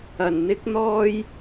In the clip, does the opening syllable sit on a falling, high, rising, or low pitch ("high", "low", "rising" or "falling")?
low